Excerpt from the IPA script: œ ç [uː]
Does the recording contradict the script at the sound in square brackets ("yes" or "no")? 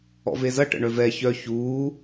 no